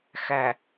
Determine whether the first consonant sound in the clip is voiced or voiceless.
voiceless